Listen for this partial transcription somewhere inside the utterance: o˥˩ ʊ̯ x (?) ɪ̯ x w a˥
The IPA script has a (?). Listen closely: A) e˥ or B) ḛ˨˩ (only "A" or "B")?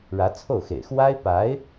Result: B